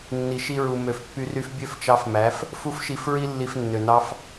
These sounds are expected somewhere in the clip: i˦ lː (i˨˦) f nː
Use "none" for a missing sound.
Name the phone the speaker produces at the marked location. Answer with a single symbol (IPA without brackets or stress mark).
i˧